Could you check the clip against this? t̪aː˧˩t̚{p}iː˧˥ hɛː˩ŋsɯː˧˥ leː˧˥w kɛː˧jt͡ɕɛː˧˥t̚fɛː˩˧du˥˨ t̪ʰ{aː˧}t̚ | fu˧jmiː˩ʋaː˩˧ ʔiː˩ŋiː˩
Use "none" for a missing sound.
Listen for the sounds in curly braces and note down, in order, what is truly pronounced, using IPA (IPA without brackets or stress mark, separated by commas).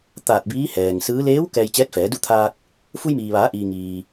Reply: b, aː˧